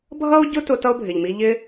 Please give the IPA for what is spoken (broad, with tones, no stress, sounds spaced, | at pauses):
bʱ ʌ˦ o̯ ɟ ʊ˦ t ʊ˧ t ʌ˦ o̯ bʱ ɪ˨ ʎ m i˧ ʎ ɪ˧